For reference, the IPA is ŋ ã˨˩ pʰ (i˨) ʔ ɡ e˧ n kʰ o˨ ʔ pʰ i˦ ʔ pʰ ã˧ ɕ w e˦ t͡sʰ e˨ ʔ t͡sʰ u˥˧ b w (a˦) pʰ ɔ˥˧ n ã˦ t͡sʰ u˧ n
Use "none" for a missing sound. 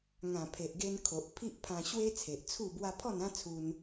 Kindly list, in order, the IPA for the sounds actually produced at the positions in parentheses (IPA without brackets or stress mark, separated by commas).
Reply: e˨, a˦